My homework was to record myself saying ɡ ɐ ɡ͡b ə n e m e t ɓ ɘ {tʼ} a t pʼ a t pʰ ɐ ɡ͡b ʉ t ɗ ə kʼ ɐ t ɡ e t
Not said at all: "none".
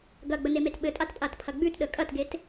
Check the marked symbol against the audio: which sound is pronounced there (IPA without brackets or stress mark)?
tʼ